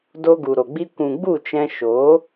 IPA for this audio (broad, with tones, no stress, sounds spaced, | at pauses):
d o˧ ɡ u˨ ɾ o˨ ɡ͡b i˧ kʷ ũ˨ ɡ͡b u˦˨ t͡ʃ ɛ̃˧ ʃ o˨˦